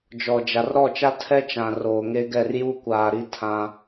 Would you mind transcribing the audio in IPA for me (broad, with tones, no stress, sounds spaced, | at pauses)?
d͡ʒ ɔ˨ d͡ʒ a˨ r ɾ ɔ˦˨ t͡ʃ a˦ tʰ ɛ˦ t͡ʃ ã˨ r oː˨ ŋ e˦ ɡ ɛ˦˨ r j u˦ kʷ aː˨ ɾ i˦ tʰ ã˦